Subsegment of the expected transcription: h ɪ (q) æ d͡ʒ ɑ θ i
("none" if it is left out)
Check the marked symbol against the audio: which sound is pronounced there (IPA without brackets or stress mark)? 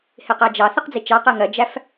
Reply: q